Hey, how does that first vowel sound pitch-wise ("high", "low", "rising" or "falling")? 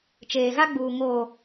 low